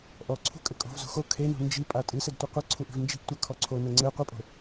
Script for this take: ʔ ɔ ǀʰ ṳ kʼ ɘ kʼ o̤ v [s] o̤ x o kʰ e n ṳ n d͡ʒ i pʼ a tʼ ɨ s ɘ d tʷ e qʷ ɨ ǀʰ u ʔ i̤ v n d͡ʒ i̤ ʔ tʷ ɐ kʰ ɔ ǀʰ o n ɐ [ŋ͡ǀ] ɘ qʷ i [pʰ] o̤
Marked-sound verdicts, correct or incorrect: incorrect: z, correct, incorrect: pʼ

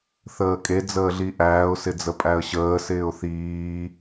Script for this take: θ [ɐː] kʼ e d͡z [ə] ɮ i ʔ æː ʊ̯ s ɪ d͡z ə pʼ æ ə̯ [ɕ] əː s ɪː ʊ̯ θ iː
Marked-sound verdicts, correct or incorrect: incorrect: əː, incorrect: əː, correct

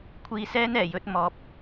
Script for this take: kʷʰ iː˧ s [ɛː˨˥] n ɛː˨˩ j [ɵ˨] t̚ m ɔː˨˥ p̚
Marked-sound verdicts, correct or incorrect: incorrect: ɛː˥, incorrect: ɵ˨˥

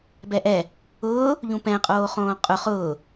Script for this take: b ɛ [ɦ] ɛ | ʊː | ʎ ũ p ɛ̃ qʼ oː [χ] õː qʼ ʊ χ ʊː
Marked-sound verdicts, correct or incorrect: incorrect: ʔ, correct

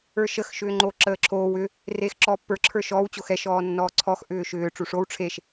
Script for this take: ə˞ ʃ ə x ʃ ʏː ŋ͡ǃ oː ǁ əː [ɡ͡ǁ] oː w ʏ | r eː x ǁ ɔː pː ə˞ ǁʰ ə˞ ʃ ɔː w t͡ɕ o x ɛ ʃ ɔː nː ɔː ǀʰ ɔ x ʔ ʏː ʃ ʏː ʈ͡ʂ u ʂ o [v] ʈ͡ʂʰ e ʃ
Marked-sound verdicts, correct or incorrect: incorrect: ǁʰ, incorrect: w

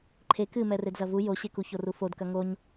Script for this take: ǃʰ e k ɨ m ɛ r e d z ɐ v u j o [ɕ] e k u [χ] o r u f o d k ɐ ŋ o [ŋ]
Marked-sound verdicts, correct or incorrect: correct, incorrect: ç, incorrect: ɲ

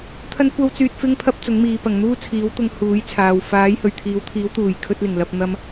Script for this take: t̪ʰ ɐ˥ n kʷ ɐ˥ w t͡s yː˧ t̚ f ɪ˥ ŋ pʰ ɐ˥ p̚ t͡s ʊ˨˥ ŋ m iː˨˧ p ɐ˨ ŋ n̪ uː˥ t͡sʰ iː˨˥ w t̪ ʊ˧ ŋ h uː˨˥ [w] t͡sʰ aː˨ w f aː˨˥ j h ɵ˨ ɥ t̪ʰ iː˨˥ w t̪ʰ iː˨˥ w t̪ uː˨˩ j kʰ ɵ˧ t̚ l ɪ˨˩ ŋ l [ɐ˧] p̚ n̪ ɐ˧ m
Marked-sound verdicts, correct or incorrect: incorrect: j, correct

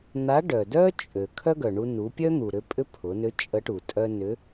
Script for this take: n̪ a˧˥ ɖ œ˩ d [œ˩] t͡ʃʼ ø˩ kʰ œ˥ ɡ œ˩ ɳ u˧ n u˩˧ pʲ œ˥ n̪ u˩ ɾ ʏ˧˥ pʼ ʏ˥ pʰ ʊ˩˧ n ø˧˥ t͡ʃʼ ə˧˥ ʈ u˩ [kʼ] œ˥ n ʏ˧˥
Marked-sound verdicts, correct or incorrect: incorrect: œ˥, incorrect: tʼ

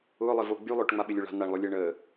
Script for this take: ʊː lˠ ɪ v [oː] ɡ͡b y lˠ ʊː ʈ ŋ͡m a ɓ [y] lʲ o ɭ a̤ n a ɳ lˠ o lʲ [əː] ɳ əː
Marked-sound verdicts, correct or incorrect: incorrect: o, incorrect: ɪ, correct

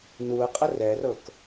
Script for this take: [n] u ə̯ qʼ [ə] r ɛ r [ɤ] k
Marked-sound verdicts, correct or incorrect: correct, correct, correct

